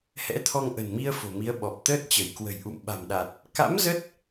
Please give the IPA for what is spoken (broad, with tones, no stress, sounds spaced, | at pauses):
h ɛ̰˧˥ t̪ʰ ɔ˧ ŋ ʔ ə̤˨˩ n m i˧ ə̯ f o̤˨˩ m i˨˦ ə̯ ɓ ɔ˨˩ p̚ t̪ əː˦˥ t̚ t͡ɕ ə˧˩ j k w ə̤˨˩ j ʔ ṵ˧˨ m ɓ a̤˨˩ m ɗ a˨˩ t̚ | k a̰˧˥ m z ə˦˥ t̚